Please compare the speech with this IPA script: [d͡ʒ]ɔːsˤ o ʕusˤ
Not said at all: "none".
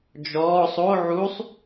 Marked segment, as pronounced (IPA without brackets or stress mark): d͡ʒ